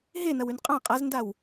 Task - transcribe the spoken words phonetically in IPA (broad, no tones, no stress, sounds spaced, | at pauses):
ɦ e n ɐ w ʉ n qʼ ã qʼ a z n d a w